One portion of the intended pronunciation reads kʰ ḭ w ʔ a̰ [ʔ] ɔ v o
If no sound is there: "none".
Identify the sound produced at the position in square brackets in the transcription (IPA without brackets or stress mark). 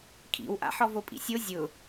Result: ħ